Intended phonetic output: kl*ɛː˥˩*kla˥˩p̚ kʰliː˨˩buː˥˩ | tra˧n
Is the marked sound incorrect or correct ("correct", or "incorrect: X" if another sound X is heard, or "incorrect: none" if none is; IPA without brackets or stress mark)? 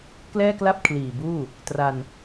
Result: correct